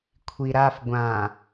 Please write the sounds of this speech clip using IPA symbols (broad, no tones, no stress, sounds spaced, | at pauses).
kʷʰ i ɾ a f ɡʷ ã